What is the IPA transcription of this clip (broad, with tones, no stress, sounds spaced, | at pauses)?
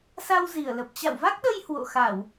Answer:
s a˧ w z i˧˩ ə̯ l ə˨˩ p̚ t͡ɕ a̰˧˨ w v a˦˥ k̚ ɗ ə˧ j h w o̰˧˨ x a˧˩˨ w